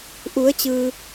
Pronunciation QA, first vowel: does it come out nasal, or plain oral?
oral